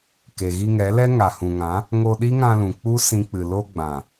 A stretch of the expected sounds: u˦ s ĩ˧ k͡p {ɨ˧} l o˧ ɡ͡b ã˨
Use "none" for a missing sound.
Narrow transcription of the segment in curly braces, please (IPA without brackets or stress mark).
ɨ˨